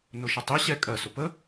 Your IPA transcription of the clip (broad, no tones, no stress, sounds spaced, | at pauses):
n ʊ ʃ ə tˤ i ɕ ɛ kʼ ɜ s ʊ p ə